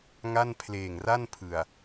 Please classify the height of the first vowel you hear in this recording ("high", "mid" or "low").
low